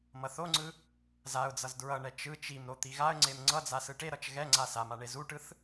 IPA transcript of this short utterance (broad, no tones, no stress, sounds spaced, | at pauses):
m ʌ θ o ŋ͡ǀ ɯ | z a ʊ̯ d͡z ʌ z d ɹ ʌ ɳ ɛ t͡ʃ ɯ t͡ʃ i m ɾ o t̪ i ɣ a ə̯ ŋ͡ǀ e m ŋ͡ǀ ʌ d͡z a s ɯ ʈ e ɾ ʌ t͡ʃ ɣ ɛ ŋ͡ǀ a s a m a ɳ e z u ʈ ɯ θ